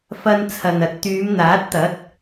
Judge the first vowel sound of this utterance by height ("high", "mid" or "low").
low